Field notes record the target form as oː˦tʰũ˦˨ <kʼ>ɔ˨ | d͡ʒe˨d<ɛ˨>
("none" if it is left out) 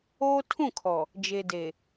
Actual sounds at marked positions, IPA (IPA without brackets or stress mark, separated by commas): kʰ, e˨